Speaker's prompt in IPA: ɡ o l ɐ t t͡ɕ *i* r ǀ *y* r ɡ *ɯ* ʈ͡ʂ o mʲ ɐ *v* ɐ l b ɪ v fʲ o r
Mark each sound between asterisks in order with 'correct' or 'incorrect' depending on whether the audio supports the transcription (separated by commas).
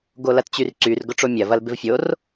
incorrect, correct, incorrect, correct